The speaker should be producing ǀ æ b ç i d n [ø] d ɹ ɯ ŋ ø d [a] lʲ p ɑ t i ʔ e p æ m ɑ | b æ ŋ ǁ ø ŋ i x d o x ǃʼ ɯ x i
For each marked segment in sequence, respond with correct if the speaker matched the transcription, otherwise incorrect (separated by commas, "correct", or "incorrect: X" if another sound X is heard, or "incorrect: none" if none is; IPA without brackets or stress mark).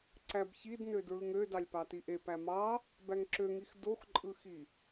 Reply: correct, incorrect: ɑ